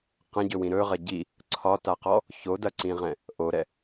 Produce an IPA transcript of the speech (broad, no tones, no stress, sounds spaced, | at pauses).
q ɐ̃ ɟ ɵ w ĩ ɾ ɵ ʁ ɐ ɟ i | ǀʰ ɒ t a q ɔ | ç o d ɐ ǀ ĩ ʁ ɛ̃ | ʔ o ɾ ɛ